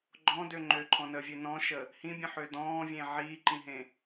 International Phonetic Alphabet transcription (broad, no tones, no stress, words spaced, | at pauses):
ɡ͡ǃɔ̃dø ŋ͡ǃøǃʰɔ̃nəːvʲø nɔ̃ʃə | hĩbʲə̃ħø dɔ̃ːvʲẽ ʕiːǃĩɦẽ